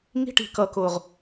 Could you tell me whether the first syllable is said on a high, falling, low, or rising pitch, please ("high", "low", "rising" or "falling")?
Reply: high